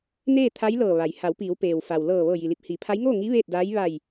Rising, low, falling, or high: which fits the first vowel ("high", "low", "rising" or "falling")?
falling